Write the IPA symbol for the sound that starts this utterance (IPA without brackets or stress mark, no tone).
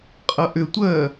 qʼ